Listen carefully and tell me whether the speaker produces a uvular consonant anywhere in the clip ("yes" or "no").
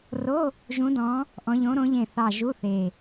no